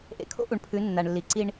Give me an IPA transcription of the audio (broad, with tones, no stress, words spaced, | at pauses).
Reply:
ʔḛ˨kʰo̰˦ʔu˨ɳpʰʉ˨˦ nːa˨ɳlːi˨ǀi˦ɳ